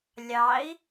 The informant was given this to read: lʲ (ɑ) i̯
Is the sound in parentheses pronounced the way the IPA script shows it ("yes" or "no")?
yes